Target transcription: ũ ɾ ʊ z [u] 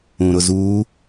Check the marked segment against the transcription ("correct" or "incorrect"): correct